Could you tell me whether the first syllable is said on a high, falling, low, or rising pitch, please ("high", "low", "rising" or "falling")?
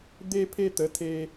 high